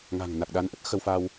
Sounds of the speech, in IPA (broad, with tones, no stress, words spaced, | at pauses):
ŋa̤˨˩ŋ na˨˩k̚ɗa˨˦nʔə˦˥t̚ xə˧wfa˧w